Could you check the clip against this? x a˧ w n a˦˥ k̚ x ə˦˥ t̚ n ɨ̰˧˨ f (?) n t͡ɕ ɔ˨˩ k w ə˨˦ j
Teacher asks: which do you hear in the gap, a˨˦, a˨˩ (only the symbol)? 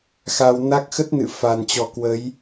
a˨˩